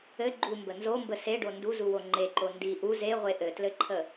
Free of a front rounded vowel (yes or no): yes